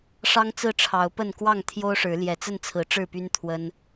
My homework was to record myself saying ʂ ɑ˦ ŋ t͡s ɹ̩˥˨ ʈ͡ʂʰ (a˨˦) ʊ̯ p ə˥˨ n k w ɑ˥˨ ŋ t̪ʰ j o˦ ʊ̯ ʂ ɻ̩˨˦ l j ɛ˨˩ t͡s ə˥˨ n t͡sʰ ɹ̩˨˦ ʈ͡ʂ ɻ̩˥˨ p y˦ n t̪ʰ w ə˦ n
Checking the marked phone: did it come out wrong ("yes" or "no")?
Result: yes